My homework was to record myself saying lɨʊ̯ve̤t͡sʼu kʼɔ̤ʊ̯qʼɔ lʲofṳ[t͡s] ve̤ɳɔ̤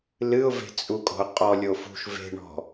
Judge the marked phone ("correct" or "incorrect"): incorrect